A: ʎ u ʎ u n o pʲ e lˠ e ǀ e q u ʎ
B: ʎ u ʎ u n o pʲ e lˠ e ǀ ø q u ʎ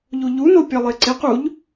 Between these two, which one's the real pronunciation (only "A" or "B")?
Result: A